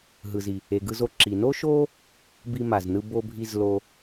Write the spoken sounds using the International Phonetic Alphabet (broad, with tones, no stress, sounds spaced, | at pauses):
ɦ ɯ˩ z i˩ | e˩ ɡ ɯ˧ z o˧ ǁ i˩ n o˥ ʃ o˥ | b i˧ m a˩ z n ɯ˧ b o˧ bʱ i˧ z l o˧